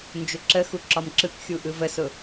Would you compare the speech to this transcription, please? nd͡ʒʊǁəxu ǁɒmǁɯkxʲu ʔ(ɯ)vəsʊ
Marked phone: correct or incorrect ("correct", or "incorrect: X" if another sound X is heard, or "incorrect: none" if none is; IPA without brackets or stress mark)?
correct